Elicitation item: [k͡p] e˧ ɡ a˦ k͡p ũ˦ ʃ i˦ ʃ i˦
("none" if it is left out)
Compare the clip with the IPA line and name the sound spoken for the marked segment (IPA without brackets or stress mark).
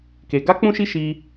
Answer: k